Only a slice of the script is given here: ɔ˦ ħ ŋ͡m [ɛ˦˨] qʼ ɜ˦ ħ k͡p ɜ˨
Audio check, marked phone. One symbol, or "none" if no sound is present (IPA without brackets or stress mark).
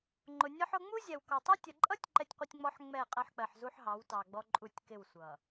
ɛ˦˨